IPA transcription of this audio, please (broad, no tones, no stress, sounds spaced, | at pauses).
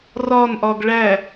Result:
r ɒ n ʔ ɒ ɡ ɭ æ